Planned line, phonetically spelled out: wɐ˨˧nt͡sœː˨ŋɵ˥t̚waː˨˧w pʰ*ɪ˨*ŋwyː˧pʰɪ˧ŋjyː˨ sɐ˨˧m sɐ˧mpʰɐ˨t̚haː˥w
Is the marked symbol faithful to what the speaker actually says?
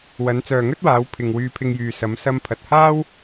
yes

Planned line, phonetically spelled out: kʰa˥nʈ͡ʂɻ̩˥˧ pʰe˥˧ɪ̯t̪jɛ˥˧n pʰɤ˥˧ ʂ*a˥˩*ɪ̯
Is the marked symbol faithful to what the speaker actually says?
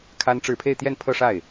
yes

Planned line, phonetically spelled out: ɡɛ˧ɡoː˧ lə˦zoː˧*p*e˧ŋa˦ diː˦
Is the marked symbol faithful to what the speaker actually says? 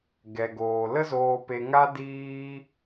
yes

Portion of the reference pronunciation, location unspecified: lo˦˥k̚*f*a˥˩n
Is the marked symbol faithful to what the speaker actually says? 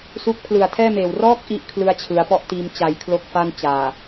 yes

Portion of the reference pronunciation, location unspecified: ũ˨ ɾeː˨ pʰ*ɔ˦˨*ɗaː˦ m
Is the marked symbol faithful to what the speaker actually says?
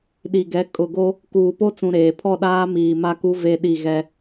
yes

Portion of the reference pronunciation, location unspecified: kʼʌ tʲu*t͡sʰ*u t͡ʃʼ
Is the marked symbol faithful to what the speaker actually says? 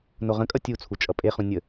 yes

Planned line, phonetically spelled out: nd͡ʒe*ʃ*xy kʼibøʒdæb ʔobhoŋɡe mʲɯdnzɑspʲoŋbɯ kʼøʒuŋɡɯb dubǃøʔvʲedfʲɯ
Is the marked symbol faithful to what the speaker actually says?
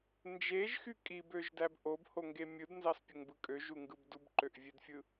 no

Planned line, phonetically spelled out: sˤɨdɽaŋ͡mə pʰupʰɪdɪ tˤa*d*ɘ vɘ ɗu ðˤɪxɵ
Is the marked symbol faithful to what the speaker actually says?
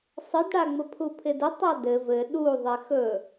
yes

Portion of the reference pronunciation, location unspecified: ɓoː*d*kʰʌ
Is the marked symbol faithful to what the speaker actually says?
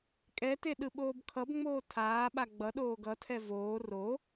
no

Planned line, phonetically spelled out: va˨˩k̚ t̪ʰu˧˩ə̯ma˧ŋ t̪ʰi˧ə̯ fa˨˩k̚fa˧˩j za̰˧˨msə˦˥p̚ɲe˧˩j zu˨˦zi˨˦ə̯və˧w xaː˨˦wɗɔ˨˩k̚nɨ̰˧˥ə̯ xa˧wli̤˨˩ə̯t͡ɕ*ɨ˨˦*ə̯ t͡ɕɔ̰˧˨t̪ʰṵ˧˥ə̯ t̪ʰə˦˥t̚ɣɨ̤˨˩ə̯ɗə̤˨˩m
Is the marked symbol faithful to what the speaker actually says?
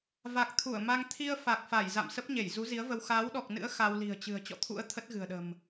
no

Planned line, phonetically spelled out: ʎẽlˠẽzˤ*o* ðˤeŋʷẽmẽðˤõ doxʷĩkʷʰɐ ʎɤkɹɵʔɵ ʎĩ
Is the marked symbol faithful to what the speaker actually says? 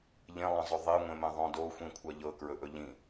no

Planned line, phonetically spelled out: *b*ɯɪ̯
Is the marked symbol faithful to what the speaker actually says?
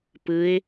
no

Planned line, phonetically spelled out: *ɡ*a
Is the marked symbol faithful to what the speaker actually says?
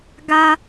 yes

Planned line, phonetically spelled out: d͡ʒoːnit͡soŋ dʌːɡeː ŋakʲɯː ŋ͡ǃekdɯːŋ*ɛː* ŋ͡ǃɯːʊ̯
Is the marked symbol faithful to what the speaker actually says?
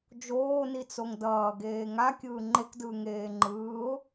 no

